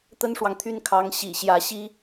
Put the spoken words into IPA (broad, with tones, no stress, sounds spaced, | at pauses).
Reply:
t̪ ə˥ n ʂ w ɑ˨ ŋ t̪ʰ y˥˩ n kʰ ɑ˧˥ ŋ ɕ ḭ˨˩ ɕ j ä˧˥ ɕ i˥